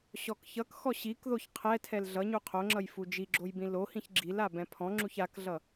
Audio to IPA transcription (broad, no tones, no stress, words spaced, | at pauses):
ɕɔkçʌkxɔ ɕikðoç qʰɛ tʰɛlɮʌɲu qʰoŋ͡ǁʌj fud͡ʒiɡ͡ǁoj bĩlohĩç ɡ͡ǁila bɛ̃pʰɔ̃ŋ͡ǁuç akɮʌ